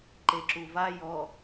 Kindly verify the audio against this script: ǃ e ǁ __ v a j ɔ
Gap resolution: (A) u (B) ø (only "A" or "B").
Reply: A